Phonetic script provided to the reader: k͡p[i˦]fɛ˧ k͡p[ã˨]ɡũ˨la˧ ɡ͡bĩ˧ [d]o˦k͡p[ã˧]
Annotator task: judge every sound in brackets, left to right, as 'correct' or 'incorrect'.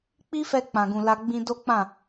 correct, correct, correct, incorrect: ã˦˨

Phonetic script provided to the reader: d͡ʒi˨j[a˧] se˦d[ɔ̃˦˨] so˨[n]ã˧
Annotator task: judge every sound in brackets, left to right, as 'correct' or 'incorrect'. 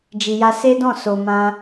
correct, correct, incorrect: m

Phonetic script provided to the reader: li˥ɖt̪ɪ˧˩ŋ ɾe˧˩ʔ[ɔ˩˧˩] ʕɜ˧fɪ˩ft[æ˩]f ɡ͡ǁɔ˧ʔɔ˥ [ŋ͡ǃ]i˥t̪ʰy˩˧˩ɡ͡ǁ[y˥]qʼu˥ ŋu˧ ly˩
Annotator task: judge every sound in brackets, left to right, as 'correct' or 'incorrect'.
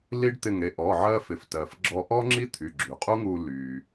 correct, incorrect: ɜ˩, incorrect: ŋ͡ǁ, incorrect: y˩

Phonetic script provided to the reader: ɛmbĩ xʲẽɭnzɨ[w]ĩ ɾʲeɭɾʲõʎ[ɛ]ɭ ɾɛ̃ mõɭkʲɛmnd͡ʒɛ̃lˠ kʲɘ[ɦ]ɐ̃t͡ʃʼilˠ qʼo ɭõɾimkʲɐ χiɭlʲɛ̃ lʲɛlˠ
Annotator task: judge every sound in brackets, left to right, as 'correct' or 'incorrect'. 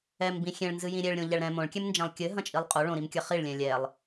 incorrect: j, correct, correct

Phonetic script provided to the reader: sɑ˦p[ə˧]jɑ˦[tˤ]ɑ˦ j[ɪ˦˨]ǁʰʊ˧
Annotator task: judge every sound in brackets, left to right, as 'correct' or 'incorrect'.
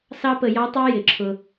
correct, correct, incorrect: ɪ˨

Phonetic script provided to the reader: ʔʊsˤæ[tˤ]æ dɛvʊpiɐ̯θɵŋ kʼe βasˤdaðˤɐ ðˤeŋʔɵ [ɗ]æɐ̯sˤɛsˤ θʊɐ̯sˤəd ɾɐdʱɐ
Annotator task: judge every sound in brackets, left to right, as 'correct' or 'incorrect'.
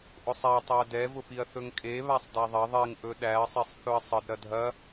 correct, correct

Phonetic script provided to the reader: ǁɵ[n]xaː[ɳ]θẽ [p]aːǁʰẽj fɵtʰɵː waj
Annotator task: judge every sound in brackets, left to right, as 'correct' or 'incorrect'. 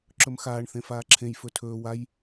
incorrect: m, correct, incorrect: f

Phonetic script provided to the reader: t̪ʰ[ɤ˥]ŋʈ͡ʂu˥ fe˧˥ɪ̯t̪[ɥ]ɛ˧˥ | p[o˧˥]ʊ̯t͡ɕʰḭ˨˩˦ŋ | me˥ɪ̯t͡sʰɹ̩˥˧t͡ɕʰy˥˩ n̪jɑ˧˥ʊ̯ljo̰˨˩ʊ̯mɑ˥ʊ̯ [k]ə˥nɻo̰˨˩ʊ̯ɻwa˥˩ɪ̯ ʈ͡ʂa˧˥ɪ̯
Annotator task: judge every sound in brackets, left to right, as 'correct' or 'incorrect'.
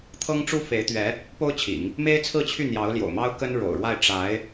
correct, correct, incorrect: o˥, correct

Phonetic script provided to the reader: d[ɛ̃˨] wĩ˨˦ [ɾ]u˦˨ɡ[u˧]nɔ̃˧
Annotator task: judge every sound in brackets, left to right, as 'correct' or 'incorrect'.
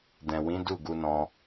correct, incorrect: d, correct

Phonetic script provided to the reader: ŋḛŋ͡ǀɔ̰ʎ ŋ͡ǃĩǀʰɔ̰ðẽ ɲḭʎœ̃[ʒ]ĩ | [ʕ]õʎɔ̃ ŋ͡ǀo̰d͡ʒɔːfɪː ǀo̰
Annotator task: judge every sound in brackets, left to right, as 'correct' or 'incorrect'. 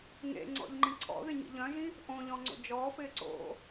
correct, incorrect: ʔ

